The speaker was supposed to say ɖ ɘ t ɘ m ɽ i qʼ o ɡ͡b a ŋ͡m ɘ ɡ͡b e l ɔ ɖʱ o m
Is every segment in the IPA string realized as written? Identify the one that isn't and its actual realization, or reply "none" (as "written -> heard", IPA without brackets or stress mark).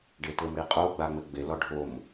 none